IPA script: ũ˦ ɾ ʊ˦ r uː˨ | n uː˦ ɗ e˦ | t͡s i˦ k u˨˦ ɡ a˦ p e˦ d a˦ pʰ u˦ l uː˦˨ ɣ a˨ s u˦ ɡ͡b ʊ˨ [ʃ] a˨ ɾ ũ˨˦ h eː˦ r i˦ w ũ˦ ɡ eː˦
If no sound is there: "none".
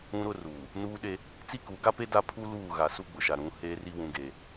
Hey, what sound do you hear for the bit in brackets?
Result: ʃ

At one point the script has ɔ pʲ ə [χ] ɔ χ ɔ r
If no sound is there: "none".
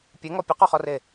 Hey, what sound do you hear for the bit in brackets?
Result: q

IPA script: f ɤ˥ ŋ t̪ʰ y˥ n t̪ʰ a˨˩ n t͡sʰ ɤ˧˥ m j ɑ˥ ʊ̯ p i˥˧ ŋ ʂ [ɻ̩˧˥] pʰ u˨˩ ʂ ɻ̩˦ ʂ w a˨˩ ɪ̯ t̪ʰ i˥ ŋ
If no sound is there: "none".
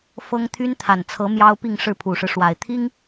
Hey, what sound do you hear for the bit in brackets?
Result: ɻ̩˥˩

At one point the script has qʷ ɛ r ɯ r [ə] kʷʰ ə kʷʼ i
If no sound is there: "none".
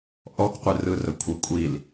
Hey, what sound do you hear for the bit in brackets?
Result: ə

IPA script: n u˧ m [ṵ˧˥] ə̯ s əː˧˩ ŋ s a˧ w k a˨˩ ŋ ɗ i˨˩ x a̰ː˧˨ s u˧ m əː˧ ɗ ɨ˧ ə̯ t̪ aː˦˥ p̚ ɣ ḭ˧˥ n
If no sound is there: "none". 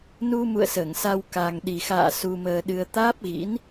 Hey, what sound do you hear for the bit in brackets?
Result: ṵ˧˨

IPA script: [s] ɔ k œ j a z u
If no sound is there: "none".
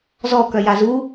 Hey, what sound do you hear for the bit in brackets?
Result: z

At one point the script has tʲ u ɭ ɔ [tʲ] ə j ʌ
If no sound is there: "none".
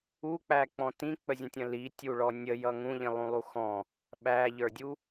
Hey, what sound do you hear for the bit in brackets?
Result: nʲ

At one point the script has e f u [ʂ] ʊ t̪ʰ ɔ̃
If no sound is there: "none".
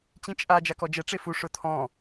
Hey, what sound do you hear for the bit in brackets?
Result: ʂ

